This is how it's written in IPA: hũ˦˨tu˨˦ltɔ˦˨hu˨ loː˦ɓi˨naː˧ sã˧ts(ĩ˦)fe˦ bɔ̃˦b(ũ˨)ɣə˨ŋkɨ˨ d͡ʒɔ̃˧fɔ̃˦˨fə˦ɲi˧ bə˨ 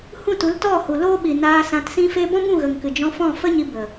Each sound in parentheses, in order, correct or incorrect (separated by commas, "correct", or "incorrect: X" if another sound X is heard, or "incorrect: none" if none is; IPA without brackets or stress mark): correct, incorrect: ũ˦˨